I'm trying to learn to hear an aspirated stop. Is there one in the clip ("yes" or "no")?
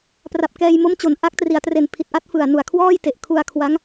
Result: yes